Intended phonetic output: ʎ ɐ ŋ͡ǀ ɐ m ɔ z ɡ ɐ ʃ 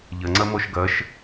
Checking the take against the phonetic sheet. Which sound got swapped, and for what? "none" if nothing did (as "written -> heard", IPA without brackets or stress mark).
z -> ʃ